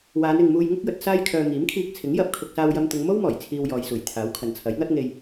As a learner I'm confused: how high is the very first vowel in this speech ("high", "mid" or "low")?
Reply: low